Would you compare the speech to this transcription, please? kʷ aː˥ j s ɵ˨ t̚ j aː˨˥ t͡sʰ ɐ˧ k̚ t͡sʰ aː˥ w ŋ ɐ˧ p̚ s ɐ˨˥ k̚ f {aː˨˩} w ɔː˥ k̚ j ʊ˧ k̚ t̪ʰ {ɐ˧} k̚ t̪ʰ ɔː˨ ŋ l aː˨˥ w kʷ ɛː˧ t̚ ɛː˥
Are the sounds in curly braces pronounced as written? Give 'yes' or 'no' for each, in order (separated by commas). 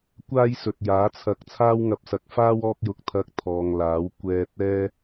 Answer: no, yes